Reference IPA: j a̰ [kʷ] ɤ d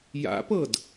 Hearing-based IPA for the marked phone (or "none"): p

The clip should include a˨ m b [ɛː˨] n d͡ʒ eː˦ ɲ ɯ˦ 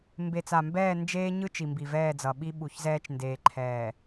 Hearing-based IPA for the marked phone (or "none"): ɛː˦˨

